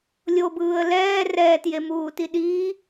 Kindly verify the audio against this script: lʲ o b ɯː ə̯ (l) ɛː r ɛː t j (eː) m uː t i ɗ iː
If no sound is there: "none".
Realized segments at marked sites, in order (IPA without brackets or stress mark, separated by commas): l, e